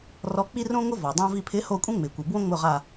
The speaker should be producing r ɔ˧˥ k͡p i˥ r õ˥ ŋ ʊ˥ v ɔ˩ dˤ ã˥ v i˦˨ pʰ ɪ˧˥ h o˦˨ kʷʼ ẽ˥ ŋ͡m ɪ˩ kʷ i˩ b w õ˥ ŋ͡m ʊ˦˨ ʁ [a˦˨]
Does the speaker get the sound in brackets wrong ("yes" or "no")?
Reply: no